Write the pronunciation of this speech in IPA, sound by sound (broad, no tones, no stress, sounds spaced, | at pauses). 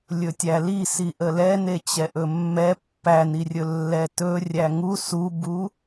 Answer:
lʲ ɵ tʲ æ l i s i ʔ ə l ɛ n e t͡ɕ ɛ ʔ ɵ mː ɛ pː æ n i rʲ ɵ lː ɛ t ɵ rʲ æ ŋ u s u b u